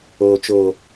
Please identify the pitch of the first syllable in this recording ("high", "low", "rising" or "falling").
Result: low